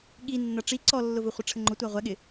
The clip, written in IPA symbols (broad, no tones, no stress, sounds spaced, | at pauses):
ɠ i nː ʌ ʈ͡ʂ i ǀ ɔ lː ʊ v ʊ χʷ ɪ ʈ͡ʂʰ ə ŋ͡ǃ ʊ tʷ æ ʁʷ ɛ ɠ ɪ